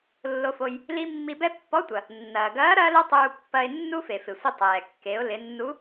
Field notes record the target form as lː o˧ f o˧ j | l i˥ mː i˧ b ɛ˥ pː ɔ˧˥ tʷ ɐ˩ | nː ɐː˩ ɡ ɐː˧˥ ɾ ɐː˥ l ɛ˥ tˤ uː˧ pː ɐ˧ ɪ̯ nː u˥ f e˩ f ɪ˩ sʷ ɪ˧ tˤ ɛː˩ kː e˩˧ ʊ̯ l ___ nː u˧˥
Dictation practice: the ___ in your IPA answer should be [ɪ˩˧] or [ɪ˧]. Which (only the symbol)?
ɪ˩˧